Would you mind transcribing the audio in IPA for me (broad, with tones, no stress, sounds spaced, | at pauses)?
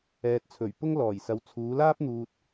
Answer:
ɛː˨ t̚ t͡sʰ ɵ˨˩ ɥ p ʊ˥ ŋ l ɔː˨˩ j s ɐ˨˧ w t͡sʰ uː˨˧ l aː˥ p̚ n̪ uː˨ t̚